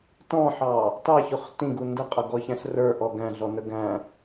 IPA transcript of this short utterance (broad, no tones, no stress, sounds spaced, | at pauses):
t ɔ̃ ħ ɑ | t ɑ ç ʊ χ t ĩ ɡ u n d ə qʼ ʌ ɡ ɔ ç æ̃ ɬ r ə˞ ʔ ɔ ɡ æ̃ ɮ ɔ n ə ɡ æ̃